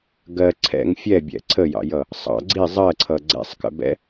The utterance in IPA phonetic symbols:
ɡɜ ǀʰɛ̰ŋ fʲɛbʲɛ̰ ǀʰəjɑ̰jʌ | sˤɑ̰ ɡ͡ǀi zˤɜǀʰʌ ɡ͡ǀɛ̰sˤkə̰bɛ̰

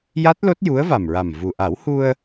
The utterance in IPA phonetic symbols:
ja˦˥t̚ lo˦˥t̚ju˧˥ə̯va˨˩mɹa˨˩m vu˨˩ ʔa˨˩˦whu˧ə̯

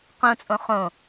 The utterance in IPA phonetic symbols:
qõt͡sʼõ χõ

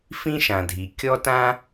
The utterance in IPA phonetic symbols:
fĩ˥ʃã˩dʱi˩ kʲɔ˥tã˥

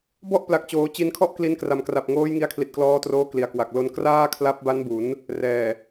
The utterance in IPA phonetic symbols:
bɔ˥˩ʔpla˨˩k̚t͡ɕoː˩˦ t͡ɕi˧nkʰɔ˥˩ʔ kli˧nkra˩˦mkra˨˩p̚ŋoː˦˥j ŋi˧a̯kʰli˨˩t̚klɔː˧troː˧ kli˩˦a̯kwa˨˩k̚ lo˧n kraː˥˩kʰla˦˥p̚ba˦˥nbu˩˦n | rɛː˨˩

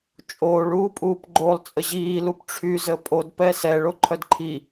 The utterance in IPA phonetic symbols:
t͡ʃʼoːɭuːpʼuːp ɡ͡ǃolˠ t͡sʼəʑiːlup ʈ͡ʂʰyzə pʼodpɛ sɛɭ oǃʰœdǃʰi

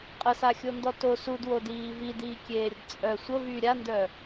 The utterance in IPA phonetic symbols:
qʼəsaxʲondɔ to sudwodiː vidiːkʲeːɾʲəd t͡sʼœ sʷəvy ɾʲandœ

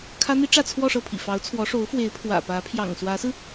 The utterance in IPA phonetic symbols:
kʰä˥n̪i˥ ʈ͡ʂä˥˧t͡sʰwɔ˥˧ʂɤ˥˩pʰḭ˨˩ fɑ˧˥ʊ̯t͡sʰwɔ˧˥ʂo˧˥ʊ̯ fwe˧˥ɪ̯ pʰwä̰˨˩pä˧˥ pʰjɑ̰˨˩ŋswä˧˥sɹ̩˧

